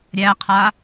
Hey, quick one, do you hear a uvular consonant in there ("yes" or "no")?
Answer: yes